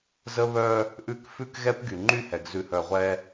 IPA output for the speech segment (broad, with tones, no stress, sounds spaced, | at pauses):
z ə˦ β œ˦ | ʔ ʉ˦ k f ʉ˦ k ɣ ɛ˦ p ɡ y˨ ŋ͡ǃ y˦˨ h ɛ˨ ɡ z ʉ˨ h œ˨ ʁʷ ɛ˦